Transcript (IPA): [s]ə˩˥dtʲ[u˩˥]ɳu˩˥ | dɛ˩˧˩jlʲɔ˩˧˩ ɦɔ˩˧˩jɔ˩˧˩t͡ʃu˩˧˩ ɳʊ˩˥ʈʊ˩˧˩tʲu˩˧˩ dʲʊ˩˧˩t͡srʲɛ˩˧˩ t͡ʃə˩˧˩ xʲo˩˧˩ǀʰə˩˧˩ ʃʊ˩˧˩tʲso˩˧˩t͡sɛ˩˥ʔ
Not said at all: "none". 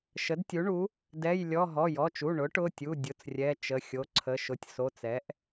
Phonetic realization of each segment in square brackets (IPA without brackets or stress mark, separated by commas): ʃ, u˩˥